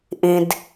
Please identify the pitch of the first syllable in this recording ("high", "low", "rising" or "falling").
low